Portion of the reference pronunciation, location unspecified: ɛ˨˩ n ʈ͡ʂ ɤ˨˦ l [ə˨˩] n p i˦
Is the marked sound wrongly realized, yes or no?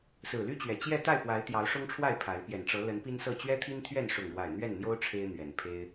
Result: yes